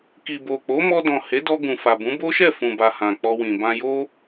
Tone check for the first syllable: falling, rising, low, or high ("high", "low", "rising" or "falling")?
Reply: low